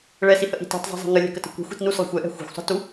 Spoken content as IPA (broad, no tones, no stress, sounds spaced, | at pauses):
ɭ ɛ s i h ə ʔ i̤ t i̤ tˤ zˤ i̤ zˤ e̤ ŋ ə lʲ ɛ̤ k ə t ə̤ kʷ ɛ̤ xʷ i̤ t n u s lˠ ə̤ xʷ ɛ ʔ ɛ̤ xʷ e̤ xʷ sˤ ə̤ t u